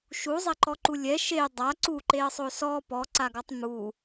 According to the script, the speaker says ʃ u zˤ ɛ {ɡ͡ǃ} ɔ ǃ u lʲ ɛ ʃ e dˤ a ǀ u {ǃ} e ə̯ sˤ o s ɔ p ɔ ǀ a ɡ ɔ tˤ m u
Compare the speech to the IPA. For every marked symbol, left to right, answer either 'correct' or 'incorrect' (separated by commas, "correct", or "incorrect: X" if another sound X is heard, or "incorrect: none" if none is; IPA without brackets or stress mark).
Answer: incorrect: ǃ, correct